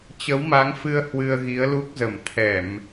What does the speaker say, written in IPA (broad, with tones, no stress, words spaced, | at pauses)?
t͡ɕə˨˦wma˨˦ŋfɨ˧ə̯ hwɨ˧ə̯ɣi˨˦ə̯lu˦˥k̚zə˧˩m t̪ʰɛ˧˩˨m